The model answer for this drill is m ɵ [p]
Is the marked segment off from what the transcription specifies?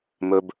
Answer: yes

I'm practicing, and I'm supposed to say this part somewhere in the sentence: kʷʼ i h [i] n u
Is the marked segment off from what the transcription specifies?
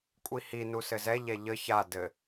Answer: no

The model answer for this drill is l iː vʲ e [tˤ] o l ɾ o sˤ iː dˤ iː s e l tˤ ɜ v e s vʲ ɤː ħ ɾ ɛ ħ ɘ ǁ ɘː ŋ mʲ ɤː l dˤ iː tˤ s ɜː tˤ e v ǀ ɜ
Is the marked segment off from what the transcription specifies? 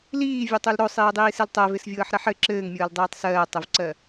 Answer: no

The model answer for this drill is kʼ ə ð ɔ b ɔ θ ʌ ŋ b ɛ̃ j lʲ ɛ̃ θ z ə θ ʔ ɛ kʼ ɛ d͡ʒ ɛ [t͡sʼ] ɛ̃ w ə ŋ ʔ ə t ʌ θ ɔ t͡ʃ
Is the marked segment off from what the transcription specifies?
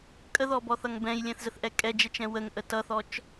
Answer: yes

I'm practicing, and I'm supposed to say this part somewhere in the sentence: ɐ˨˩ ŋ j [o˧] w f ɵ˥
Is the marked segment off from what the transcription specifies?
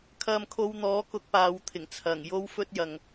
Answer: yes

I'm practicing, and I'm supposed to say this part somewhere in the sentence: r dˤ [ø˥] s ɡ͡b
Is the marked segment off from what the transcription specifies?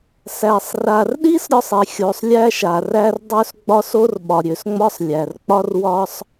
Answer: no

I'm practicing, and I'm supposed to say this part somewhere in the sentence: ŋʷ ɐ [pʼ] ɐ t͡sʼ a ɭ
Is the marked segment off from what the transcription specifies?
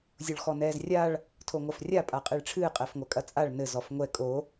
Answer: yes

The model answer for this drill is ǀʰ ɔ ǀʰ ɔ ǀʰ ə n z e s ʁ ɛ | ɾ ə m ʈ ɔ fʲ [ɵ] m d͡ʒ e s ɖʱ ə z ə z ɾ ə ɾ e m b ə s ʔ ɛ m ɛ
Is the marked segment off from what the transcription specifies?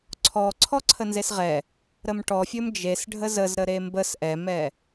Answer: no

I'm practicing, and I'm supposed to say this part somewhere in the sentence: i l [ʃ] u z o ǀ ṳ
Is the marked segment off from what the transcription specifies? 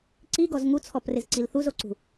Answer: yes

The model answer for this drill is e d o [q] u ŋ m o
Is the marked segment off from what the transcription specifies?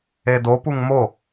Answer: yes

